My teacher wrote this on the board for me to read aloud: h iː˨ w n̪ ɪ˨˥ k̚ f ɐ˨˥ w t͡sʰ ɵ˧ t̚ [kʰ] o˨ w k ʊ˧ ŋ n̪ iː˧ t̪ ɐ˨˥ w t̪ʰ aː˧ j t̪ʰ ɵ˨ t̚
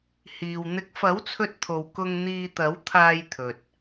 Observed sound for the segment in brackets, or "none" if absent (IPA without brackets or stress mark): t̪ʰ